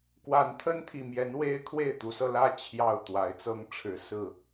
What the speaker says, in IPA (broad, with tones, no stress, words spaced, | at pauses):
kwa˨˦nt̪ʰə˦nt̪ʰi˨˩mjɛ˨˦n we˦ɪ̯kʰwe˥˨ɪ̯t̪u˨˦sɤ˧ lä˥˨ t͡ɕʰjɑ˥˨ʊ̯t̪wa˨˦ɪ̯ t͡sɤ˦ŋʈ͡ʂʰɻ̩˨˦sɹ̩˥˨